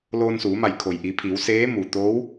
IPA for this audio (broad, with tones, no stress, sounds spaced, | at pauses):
l oː˧ n s uː˩˧ m a˧˩ j kʰ o˩ j ʔ i˩˧ pʰ i˩˧ w s eː˧˥ m u˩ t̪ oː˧˥ w